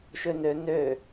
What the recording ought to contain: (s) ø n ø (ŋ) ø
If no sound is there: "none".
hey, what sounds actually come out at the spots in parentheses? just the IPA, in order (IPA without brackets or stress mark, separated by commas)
ʃ, n